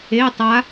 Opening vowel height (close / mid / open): mid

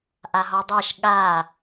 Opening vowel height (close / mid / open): open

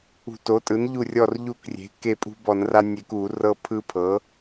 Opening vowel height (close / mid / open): close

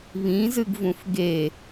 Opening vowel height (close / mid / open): close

